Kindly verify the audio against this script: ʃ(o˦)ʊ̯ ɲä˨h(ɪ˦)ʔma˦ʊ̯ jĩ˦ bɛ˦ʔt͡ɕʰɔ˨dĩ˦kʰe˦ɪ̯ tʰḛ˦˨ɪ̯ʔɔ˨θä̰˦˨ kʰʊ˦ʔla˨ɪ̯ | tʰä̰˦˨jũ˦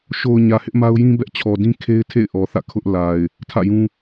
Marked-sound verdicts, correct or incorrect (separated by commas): incorrect, correct